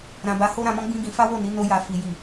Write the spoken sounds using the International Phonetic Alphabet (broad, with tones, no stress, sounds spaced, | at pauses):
ɾ ã˨ b a˨˦ h o˦ ɾ ã˧ m ɔ̃˦ ɡ͡b ĩ˦ ɡ ĩ˧ f a˦ w o˦˨ n i˨˦ n o˧ j a˨ f i˨ j i˨